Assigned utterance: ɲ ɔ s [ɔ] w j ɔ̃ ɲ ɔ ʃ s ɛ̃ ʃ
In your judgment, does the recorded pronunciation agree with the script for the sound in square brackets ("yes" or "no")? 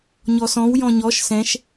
no